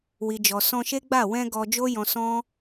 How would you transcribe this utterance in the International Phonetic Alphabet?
w i˨ d͡ʒ ɔ˨ s ɔ̃˧ ʃ e˦ ɡ͡b a˦˨ w ɛ̃˧ ɡ ɔ˧ d͡ʒ o˦ j ɔ̃˧ s ɔ̃˦

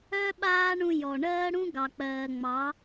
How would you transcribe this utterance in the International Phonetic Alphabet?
œ˦ ɓ aː˦ ɳ ũ˧ j ɔ˨ ɳ ɜː˦ ɽ ũ˦ ɡ ɑ˨ k͡p ɜː˨ ŋ͡m ɑ˨˦

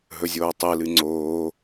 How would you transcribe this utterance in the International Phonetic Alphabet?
ɦ ɵ zʲ oː tˤ ɨ l ɨ ŋ͡ǀ oː

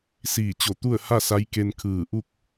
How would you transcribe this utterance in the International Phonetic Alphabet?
s iː˧˩ t͡ɕ o˧˩ t̪ u˥˨ ə̯ h a˥˨ s a˧˥ j k e˧ n kʰ ɯː˧˩ ʔ u˥˨ k̚

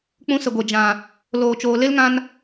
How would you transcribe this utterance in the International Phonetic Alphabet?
k͡p ũ˧ s ə˨ ɡʷ e˨ d͡ʒ ã˨ | l oː˨ t͡ʃ oː˨ l e˦ l ŋ ã˧ n

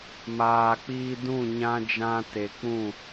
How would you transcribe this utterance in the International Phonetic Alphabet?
m aː˧ k͡p iː˦ d ũ˦˨ ɲ ã˦ d͡ʒ ã˦ t e˧ k͡p ũ˦˨

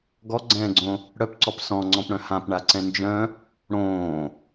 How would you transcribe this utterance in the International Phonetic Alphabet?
ɡ ɔ ɡ͡ǀ ɛ̃ː ɡ͡ǀ õ | ɽ œ p ǀ ɔ p s ɔ̃ ŋ͡ǀ ɔ̃ p ɽ œ̃ h ã p ɳ a ǀ ɛ̃ n d͡ʒ œ̃ | ɽ õː

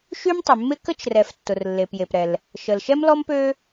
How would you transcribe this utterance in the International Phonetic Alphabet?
ʃ y˥ m tˤ ɪ˩ mː ɪ˥ k ə˥ t͡ʃ r ɛ˩ f tː ʊ˩ r lː e˩ p j e˩ p ɾ ɛ˩ l | ʃ ə˩ l ʃ ɛ˥ m l ɔ˥ m p ø˥

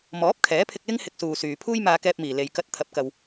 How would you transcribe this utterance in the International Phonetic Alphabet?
m ɔː˨˥ p̚ kʰ ɛː˨˥ pʰ ɪ˧ k̚ l ɪ˥ ŋ h ɪ˧ k̚ s uː˨ s yː˨ pʰ uː˥ j m aː˧ k ɛː˧ p̚ m iː˨˩ l e˨ j k ɐ˧ t̚ t̪ʰ ɐ˨˥ p̚ k ɐ˨ w

